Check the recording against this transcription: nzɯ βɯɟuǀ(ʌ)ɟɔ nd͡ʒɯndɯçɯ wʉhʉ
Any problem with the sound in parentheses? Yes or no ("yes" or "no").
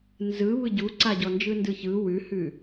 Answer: yes